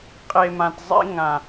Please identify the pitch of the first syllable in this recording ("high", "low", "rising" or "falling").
low